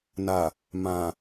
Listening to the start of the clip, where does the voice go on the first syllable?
low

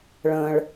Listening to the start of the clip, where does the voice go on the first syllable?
low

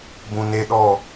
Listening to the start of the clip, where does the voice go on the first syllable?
low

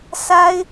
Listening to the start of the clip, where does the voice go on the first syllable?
high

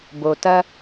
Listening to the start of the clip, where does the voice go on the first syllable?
low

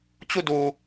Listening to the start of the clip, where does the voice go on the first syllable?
falling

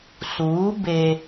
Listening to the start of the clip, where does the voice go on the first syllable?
rising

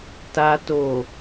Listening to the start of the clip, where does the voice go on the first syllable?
low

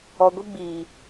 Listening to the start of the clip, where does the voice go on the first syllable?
low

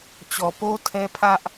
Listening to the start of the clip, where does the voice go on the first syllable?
low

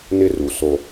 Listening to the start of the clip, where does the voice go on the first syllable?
high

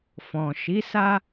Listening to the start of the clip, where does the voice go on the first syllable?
low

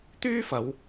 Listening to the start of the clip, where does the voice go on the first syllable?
high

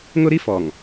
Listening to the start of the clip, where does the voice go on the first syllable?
high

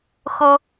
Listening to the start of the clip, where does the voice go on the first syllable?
high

